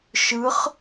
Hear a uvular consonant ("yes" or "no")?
yes